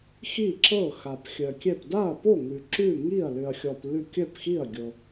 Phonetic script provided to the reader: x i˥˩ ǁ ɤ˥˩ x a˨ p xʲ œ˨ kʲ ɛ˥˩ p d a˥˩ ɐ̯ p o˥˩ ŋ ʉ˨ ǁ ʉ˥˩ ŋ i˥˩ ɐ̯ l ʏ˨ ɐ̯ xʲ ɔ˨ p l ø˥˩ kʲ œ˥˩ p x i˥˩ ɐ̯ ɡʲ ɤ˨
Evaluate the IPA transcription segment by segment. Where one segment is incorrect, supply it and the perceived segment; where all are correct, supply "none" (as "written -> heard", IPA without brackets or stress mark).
ø˥˩ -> ʉ˥˩